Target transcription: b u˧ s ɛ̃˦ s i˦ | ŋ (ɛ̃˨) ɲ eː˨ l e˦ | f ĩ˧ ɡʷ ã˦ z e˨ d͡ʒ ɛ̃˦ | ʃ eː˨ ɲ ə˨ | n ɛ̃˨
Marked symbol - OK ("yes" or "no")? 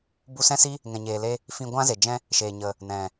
yes